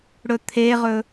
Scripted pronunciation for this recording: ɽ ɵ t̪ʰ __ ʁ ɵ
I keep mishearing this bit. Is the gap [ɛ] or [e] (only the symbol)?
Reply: e